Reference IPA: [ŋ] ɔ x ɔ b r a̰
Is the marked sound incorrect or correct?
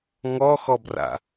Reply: correct